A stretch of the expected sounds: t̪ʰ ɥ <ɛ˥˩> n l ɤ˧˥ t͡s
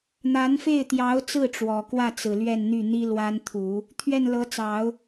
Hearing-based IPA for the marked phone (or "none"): ɛ˥˩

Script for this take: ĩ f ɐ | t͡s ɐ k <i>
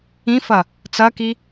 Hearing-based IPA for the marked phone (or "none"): i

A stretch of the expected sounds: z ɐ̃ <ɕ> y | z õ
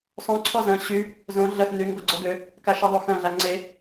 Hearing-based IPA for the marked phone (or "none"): ɕ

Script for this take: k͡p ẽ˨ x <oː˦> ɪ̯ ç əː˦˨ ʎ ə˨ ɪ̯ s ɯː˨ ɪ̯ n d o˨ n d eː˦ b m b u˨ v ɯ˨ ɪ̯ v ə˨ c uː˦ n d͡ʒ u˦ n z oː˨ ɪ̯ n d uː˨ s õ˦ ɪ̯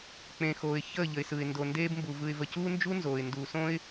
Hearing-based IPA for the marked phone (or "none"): oː˨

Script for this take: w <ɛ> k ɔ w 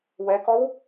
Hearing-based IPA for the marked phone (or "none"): ɛ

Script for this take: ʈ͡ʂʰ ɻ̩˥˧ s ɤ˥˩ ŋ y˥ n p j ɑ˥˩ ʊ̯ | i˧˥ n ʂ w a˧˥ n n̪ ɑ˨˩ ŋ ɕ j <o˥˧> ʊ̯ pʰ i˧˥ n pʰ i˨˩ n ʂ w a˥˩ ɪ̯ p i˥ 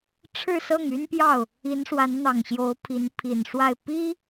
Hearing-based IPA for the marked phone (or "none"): o˧˥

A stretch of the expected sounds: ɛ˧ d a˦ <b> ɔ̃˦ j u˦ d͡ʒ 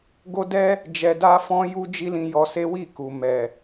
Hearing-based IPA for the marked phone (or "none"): f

